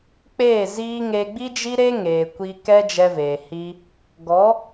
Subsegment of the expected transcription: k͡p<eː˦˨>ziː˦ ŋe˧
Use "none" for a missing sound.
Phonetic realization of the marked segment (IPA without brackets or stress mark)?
eː˦˨